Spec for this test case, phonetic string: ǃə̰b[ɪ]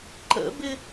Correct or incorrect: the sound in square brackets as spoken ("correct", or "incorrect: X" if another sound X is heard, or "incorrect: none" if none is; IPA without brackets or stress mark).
correct